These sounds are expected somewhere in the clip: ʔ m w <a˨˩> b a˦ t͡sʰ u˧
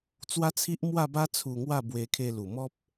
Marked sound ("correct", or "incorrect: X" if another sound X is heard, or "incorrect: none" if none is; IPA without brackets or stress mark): incorrect: a˥˧